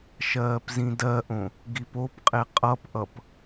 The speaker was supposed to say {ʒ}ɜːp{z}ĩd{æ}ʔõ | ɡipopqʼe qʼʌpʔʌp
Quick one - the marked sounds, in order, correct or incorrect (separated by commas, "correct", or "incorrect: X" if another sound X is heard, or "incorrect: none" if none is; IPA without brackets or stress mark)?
incorrect: ʃ, correct, incorrect: ɜ